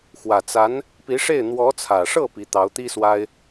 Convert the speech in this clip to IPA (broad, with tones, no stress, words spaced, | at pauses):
xwä˨˩t͡sa˧˥n | pi˧˥ʂe˥˩ɪ̯ n̪wɔ˧˥t͡sʰä˨˩ʂɤ˥˩ pi˧˥t̪ɑ˧˥ʊ̯t̪i˥ swa˥ɪ̯